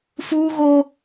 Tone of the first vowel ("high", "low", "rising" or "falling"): high